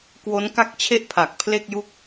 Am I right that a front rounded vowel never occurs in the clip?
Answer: yes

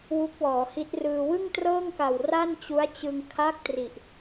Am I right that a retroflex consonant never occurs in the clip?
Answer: yes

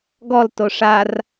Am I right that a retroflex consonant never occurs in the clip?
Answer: no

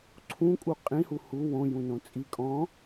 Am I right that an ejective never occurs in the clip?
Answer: no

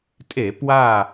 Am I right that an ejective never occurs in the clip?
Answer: no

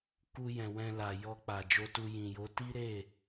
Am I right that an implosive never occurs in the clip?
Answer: yes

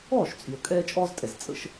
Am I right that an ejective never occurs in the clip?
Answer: no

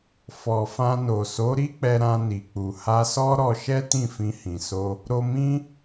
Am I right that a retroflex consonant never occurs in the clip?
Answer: yes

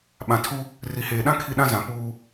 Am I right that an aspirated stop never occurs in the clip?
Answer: no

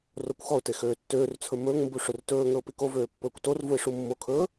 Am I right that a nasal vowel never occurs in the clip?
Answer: yes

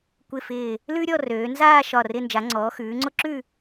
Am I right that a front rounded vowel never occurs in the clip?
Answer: no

